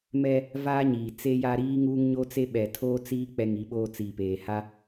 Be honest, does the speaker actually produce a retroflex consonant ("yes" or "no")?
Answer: no